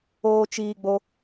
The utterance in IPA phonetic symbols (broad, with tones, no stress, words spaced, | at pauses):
oː˦t͡ʃiː˧ɡ͡bo˦